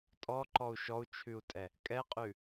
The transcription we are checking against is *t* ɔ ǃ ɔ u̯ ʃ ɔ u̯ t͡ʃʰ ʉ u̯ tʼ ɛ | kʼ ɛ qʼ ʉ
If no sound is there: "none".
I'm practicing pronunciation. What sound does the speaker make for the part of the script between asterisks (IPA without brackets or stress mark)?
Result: tʼ